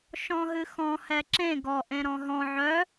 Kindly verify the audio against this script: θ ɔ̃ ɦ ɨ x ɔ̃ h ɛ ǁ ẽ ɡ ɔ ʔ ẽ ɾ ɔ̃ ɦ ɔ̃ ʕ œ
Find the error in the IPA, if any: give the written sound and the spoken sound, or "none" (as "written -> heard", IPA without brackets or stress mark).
θ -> ʃ